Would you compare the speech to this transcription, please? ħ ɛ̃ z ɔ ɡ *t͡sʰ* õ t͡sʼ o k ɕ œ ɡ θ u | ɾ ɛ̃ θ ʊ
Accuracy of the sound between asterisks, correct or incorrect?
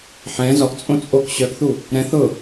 incorrect: t͡sʼ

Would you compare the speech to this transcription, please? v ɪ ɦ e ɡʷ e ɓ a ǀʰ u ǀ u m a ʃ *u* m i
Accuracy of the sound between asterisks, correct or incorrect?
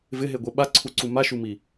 correct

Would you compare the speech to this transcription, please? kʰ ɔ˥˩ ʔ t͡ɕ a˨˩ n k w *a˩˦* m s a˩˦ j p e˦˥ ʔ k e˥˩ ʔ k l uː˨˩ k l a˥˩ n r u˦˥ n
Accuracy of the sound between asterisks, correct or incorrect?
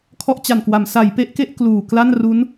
correct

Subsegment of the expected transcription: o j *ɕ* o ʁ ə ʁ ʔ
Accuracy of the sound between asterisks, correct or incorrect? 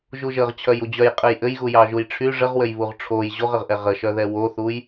incorrect: ʑ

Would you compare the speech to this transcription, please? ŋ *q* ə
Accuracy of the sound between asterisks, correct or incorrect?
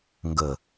incorrect: ɡ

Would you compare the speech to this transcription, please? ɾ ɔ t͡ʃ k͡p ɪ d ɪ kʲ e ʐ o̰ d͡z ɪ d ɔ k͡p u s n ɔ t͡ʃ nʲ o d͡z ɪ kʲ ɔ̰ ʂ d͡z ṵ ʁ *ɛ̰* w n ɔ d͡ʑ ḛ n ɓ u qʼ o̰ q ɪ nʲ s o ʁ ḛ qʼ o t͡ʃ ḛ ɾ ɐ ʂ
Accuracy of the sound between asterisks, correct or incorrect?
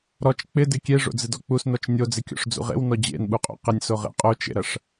incorrect: ḛ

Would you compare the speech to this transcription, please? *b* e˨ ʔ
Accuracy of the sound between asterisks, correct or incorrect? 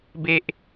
correct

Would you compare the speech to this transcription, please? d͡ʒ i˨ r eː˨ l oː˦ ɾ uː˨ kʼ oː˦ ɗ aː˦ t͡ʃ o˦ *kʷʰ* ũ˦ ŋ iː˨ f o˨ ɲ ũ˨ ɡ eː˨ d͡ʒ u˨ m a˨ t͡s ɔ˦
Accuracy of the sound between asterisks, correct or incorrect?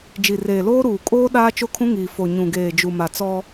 incorrect: kʰ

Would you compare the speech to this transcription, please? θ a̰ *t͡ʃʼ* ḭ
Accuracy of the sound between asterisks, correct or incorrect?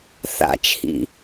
incorrect: t͡ʃʰ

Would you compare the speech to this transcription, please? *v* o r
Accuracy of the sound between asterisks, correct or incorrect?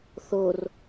incorrect: θ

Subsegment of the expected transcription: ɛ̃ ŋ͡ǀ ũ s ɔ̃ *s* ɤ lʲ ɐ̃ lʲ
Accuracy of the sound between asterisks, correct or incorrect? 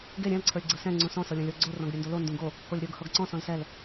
correct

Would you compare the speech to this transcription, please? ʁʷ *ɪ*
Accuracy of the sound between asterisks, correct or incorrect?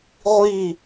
incorrect: i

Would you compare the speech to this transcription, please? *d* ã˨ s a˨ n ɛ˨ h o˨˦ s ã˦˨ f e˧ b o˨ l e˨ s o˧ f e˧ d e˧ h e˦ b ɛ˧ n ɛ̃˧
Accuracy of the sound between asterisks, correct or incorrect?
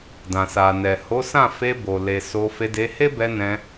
correct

